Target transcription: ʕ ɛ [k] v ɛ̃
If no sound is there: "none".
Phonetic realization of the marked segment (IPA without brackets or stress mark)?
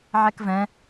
k